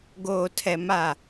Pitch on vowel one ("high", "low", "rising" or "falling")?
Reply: low